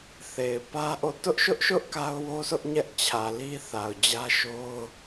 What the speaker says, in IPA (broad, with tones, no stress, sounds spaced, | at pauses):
θ e˨ ɪ̯ p ä˦ ʔ o˦˨ t ʊ˦ ʔ ʃ ʊ˦ ʔ ʃ ʊ˦ ʔ k a˦ ʊ̯ w o˦ sʰ ʊ˦ ʔ ɲ ɛ˦ ʔ t͡ɕʰ ä˨ l i˦ θ a˨ ʊ̯ d͡ʑ ä˦ ʃ o˦ ʊ̯